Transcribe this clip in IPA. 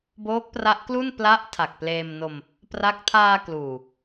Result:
boː˦˥k̚pra˦˥ʔklu˥˩n pla˦˥ʔ tʰa˨˩k̚pleː˧mno˧m | pra˥˩k̚ tʰaː˧ kluː˨˩

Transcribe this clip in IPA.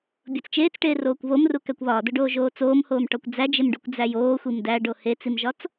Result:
bʲot͡st͡ʃeːt͡sʈeː roːkʷβomru kækʷβɒːdoɖoː ʒoːt͡soːmhoːmʈɒkʷ d͡zæd͡ʒemɖukʷ d͡zæjoːxʷim dæɖo het͡simʒɒt͡s

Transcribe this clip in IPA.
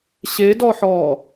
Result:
ɕedɔħɔː

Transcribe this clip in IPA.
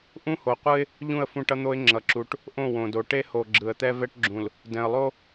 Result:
ʔũ˦ho˨qʷɯ˦ɪ̯ | ʎũ˦˨ə̯fũ˦ʈʌ˦n̪o˦ɪ̯ ŋ͡ǁʌ˨ǁu˨ʈ | ʔõ˦˨wõ˨do˨ ʈe˦ho˨ ɡ͡ǁɯ˨ə̯t̪ɛ˦ vɛ˦ʈɡ͡ǁũ˨l | dɛ̃˨ə̯lˠo˦

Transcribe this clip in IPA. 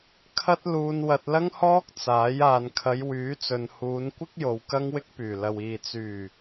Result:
kʰɐ˥t̚ luː˧nwɐ˧t̚lɐ˥ŋhɔː˥k̚ t͡saː˨˥j aː˨nkʰɐ˨˧j wyː˨˥t͡sɵ˨n huː˨˧nkʷɪ˥k̚jo˨w kɐ˥ŋwɪ˥k̚pyː˨˩ lɐ˨wiː˨ t͡syː˨˩

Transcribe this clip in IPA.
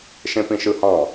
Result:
ʃẽpĩʃɯhɑ̃

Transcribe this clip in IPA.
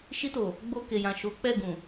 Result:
ʃi˧to˨ | ɡ͡bo˧ke˨jã˨ ʃo˨˦k͡pɛ˦˨ɡũ˨

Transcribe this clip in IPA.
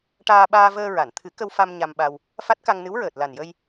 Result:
ʈaː˧ɓaː˧vəː˧ɹa˨˩˨n t̪ʰɨ˨˩˦kə˧w fa˧m ɲa˧mɓa˧w | fa˦˥t̚ka˧ŋnɨ˧˥wɹəː˨˩t̚ la˨˩njə˧j

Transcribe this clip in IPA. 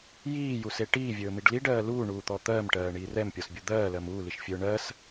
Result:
jiːjuse ʈiːvʲɵːmiɖ liɖɜː luːɳuːt̪ɔ t̪ɜːmʈɜːɳiː rɛmpʲɔsbʲu d̪ɜːlɜm uːliʃfʲɵː ɳɜs

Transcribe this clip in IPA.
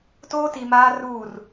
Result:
toː˦ti˨maː˦ ruː˦˨r

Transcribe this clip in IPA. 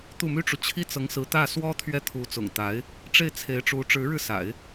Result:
t̪u˥˩my˥ʈ͡ʂu˨ t͡ɕʰi˥t͡sɤ˧˥ŋsɹ̩˧˥t̪ä˥˩ swɔ˥ t̪ʰɥɛ˥˩t̪ʰu˧˥ t͡sʊ̰˨˩ŋt̪a˧˥ɪ̯ | ʈ͡ʂe˥˩ɪ̯t͡sʰe˧˥ɪ̯ʈ͡ʂu˧˥ ʈ͡ʂɻ̩˧˥ɻɻ̩˧sa̰˨˩˦ɪ̯

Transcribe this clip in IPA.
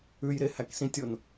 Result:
ʉjɾe hæksĩtʲon

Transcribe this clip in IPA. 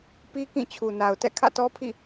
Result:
pi˦kĩ˦˨ t͡ɕʰu˨na˨ʊ̯tɛ̰˦˨ kʰä̰˦˨tɔ˦pʰḭ˦˨

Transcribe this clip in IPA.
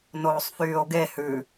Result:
noːsˤfyːo̯ɡe hʉ

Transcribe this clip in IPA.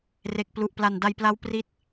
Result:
re˨˩k̚ plu˨˩ʔpla˨˩nda˧jpla˦˥w pri˦˥t̚

